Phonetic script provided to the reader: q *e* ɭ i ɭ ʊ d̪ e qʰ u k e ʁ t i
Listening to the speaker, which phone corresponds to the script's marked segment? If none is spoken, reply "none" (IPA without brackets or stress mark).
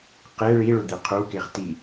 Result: e